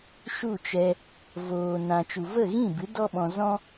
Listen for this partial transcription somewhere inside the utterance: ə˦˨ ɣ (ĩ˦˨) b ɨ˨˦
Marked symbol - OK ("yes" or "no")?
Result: yes